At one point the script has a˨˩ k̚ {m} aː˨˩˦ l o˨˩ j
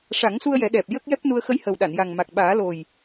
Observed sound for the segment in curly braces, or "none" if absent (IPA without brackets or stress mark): ɓ